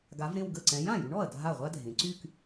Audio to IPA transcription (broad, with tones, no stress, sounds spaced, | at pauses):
ɡ a˨˥ v ɾ ẽ˥˧ w ɡ ə˥˩ ǀ ɛ̃˨˥ j ã˥˩ j y˨˥ ɳ ɔ˥˩ ɐ̯ dʱ a˥˩ ʁʷ a˥ dʱ ẽ˩˧ ǀ y˥˧ k